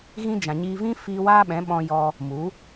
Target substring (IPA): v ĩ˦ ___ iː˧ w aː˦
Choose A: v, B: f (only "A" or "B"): B